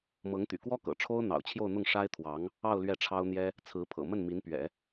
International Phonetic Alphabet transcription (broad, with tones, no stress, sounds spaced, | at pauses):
m ɤ˧˥ ŋ t̪ y̰˨˩ k w ɔ˥ k ɤ̰˨˩ ʈ͡ʂʰ o˥ ʊ̯ n̪ ɑ̰˨˩ ʊ̯ t͡ɕʰ j o˥˧ ʊ̯ n̪ ʊ˥˩ ŋ ʂ a˥ ɪ̯ t̪ʰ w ɑ˧˥ ŋ | ɑ˥˧ ʊ̯ l ɥ ɛ˥˩ ʈ͡ʂʰ ɑ˥ ʊ̯ n̪ j ɛ˥ | t͡sʰ ɹ̩˧˥ pʰ ɤ̰˨˩ m ə˥˩ n m i˧˥ n p ɥ ɛ̰˨˩˦